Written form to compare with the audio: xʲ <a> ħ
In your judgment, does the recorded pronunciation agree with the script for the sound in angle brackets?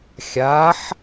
yes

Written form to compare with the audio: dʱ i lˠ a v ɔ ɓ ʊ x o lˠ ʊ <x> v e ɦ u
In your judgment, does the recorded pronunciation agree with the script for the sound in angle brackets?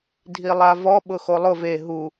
no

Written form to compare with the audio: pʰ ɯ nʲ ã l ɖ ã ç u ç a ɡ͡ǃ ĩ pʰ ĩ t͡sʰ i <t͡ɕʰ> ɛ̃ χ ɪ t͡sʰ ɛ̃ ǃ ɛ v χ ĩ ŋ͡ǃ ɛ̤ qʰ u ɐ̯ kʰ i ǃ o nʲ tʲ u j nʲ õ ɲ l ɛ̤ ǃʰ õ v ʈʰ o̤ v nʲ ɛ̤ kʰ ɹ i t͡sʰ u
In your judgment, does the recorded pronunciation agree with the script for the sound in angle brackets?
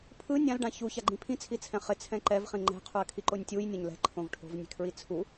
no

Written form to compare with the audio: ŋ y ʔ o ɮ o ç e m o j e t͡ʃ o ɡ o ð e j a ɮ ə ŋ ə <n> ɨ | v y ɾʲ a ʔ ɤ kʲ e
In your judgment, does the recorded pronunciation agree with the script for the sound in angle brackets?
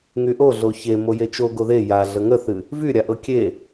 no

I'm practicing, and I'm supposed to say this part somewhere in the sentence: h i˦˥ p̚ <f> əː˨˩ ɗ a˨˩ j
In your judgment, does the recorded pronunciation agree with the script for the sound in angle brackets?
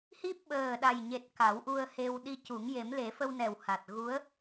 no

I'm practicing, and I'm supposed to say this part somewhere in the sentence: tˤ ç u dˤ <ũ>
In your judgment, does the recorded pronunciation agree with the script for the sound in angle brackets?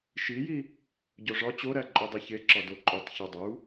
no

